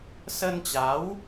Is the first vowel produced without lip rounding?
yes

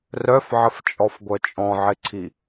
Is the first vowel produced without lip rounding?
no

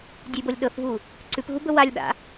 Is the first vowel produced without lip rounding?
no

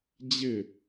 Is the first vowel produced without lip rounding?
yes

